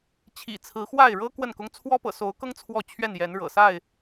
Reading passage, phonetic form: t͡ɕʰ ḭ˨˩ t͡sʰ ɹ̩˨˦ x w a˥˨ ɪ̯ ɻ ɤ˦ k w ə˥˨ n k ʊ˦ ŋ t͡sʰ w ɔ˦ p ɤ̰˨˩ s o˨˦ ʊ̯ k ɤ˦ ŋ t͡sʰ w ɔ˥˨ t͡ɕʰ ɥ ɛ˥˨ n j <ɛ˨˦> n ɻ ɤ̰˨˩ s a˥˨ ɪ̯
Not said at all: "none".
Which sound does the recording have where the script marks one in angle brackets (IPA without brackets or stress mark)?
ɛ˨˦